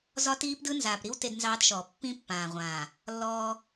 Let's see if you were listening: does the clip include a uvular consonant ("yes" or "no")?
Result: yes